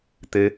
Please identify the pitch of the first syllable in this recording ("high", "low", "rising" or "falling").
rising